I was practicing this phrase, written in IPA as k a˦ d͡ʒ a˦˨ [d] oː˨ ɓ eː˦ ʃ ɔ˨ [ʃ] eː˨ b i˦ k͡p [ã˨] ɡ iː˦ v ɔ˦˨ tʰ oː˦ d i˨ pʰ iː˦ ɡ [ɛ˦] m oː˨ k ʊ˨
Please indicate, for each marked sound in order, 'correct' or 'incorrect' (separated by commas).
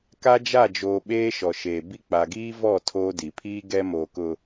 incorrect, correct, incorrect, correct